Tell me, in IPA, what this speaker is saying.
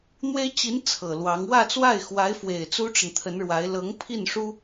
n̪ w e˥ ɪ̯ t͡ɕ i˧˥ n t͡sʰ ɤ˨˩ l w ɑ˧˥ ŋ w ä˥˧ t͡s w a˥˩ ɪ̯ x w a˧˥ ɪ̯ f w e˨˩ ɪ̯ t͡s u˥ ʈ͡ʂ ə˨ n t̪ʰ ə˧˥ n ɻ w a˧˥ ɪ̯ l ɤ˧˥ ŋ pʰ i˥˩ n ʂ u˥

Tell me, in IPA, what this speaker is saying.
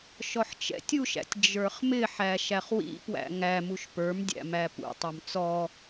ʃ ɔ ħ t͡ʃ ɛ̰ tʲ u ʃ æ̰ tʲ d͡ʒ ə˞ χ m ɪ ħ æ ʃ æ χ w ḭ p w æ̰ ŋ æ m u ʃ p ə˞ m dʲ æ̰ m æ p ṵ tˤ u m t͡s ɔ

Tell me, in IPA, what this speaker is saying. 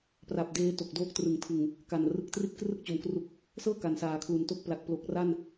p r a˨˩ p̚ d eː˦˥ t o˨˩ k̚ d oː˦˥ k̚ t r ɯ˨˩ ŋ tʰ ɯ˨˩ ŋ | k a˨˩ n r ɯ˨˩ k̚ t r i˥˩ t̚ k r ɯ˦˥ k̚ t͡ɕ o˨˩ m k r u˨˩ k̚ | s ɤː˥˩ k a˩˦ n s aː˩˦ kʰ l u˨˩ n t o˥˩ k̚ p l a˨˩ k̚ p l o˨˩ k̚ r a˥˩ n

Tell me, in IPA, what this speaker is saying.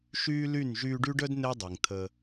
ʃ yː˦ l y˦˨ n ʒ yː˧ ɖ y˦ ɖ œ˦ d n e˦ dˤ i˨ ŋ t̪ʰ ə˧

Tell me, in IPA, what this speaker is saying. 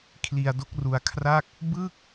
kʰ l i˧ a̯ d o˦˥ k̚ r u˧ a̯ kʰ r a˥˩ k̚ | b ɯ˥˩ k̚

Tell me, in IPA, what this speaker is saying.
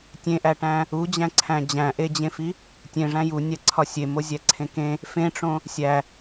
tʲ ẽ ʔ æ ʈ æ̃ | u d͡ʑ æ̃ ǀʰ æ̃ d͡ʑ æ̃ ʔ e d͡ʑ ẽ f i | tʲ ẽ ʐ æ̃ j u nʲ æ ǀʰ ɒ sʲ e m o zʲ æ ǀʰ ẽ k ẽ | f ẽ ʈ͡ʂ õ | sʲ æ

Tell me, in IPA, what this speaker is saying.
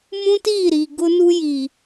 m ũ˦ t iː˦˨ ɾ iː˨ ɡ ʊ˦ n u˦ j i˨

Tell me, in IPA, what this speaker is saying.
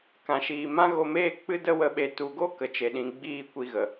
k ã˨ ʃ iː˨ m ã˦ ɣ o˧ m eː˦ k͡p ɨ˦ d ə˦ w ə˧ ɓ e˧ t u˨ ɡ o˦ k ə˨ t͡ʃ e˨ ɗ ĩ˨ ɡ͡b iː˦ kʷ i˧ ɣ ə˨

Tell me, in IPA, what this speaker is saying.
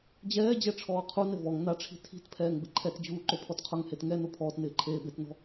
d͡ʑ ɛː d͡ʑ ɛ ʈ͡ʂʰ ɔː qʰ u n ɪ v ɔ ŋ n a ʈ͡ʂʰ i̤ tʰ i̤ t pʰ ɛː ŋ b ɪ ǃʰ ɛ t d͡ʑ uː ǃ o pʰ ɔ t qʰ ʊ ŋ h e t ŋ ɛ n o pʰ ɔː t n ɪː ǃʰ eː b e t n ɔ̤

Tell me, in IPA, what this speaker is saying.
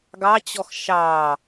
ɡ ɑ t͡ɕ ɔ x ʃ ɑ

